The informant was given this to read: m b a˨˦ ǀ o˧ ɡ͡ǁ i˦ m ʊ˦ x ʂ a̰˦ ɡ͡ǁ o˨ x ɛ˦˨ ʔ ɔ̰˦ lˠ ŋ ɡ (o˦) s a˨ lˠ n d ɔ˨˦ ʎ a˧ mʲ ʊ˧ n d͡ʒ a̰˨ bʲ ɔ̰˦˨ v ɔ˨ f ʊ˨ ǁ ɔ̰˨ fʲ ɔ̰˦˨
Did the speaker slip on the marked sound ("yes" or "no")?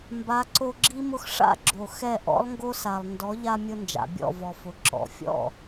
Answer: no